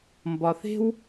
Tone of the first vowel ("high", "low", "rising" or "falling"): low